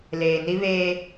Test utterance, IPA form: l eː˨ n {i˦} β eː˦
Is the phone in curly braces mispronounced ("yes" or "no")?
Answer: no